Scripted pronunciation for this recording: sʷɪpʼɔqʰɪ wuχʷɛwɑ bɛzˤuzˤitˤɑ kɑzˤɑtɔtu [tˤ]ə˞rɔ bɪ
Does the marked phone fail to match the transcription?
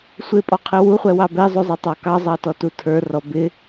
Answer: yes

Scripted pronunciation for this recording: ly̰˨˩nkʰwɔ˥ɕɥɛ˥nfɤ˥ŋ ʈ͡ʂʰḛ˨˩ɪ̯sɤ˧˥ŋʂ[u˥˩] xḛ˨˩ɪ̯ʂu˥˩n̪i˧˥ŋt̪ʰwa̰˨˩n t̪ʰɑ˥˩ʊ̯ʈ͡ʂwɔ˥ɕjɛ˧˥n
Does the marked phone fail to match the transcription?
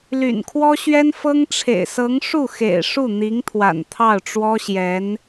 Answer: no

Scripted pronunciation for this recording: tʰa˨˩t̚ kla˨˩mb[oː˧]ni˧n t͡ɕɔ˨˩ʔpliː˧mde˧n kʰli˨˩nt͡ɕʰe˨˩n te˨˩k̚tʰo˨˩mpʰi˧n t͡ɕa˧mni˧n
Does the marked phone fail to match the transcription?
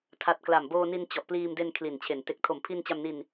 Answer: no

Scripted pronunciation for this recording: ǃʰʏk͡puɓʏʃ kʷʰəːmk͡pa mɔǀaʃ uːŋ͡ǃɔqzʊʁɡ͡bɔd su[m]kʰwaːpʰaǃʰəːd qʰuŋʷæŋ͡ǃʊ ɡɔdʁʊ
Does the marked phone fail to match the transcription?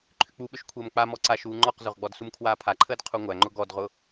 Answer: no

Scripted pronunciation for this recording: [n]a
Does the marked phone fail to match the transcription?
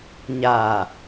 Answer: yes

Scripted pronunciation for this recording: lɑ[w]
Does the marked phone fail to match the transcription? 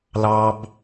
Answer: yes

